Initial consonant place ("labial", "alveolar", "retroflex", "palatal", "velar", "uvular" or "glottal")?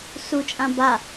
alveolar